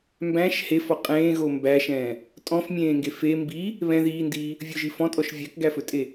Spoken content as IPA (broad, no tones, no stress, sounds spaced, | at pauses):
m b æ̃ ʃ h e f ɔ qʼ ẽː ɣ o m b æ ʃ ɛ̃ː | tʼ ɔ̃ f mʲ ẽː ŋ ɡ e f e m b i | β ɛ̃ ð iː n d iː | vʲ ʊ ʒ i f ɔ̃ tʼ ɔ ʃ vʲ æ k ɡ æ f ɵ tʼ e